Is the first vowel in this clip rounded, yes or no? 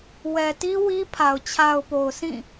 no